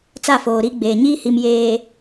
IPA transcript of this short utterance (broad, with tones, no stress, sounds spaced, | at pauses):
t͡s a˦˨ f oː˨ ɾ i˦ ɡ͡b eː˨ ɲ iː˦ h i˨ m j eː˨